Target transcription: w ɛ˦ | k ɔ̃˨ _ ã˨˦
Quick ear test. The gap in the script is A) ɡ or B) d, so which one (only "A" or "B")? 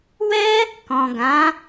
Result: A